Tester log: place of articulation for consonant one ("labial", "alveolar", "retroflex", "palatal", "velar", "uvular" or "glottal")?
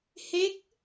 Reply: glottal